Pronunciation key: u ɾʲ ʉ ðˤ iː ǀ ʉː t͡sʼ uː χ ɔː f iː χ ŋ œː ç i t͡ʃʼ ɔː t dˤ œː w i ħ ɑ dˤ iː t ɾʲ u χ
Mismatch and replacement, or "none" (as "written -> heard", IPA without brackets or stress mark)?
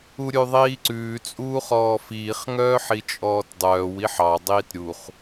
ç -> ħ